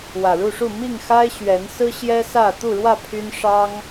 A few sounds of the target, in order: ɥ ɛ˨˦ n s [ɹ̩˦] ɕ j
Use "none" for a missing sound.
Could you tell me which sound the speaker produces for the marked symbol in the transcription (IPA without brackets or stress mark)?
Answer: ɹ̩˦